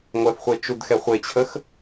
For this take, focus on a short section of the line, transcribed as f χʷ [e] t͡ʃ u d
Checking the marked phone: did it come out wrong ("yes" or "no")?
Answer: no